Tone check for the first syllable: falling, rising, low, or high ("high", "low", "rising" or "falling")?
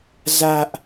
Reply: high